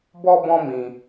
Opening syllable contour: high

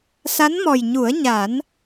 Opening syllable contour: rising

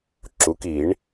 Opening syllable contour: rising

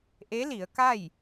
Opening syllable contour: rising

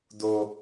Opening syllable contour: high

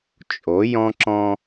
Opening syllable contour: rising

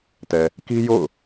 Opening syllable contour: low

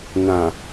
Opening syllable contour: low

